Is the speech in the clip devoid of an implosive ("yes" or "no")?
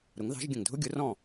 yes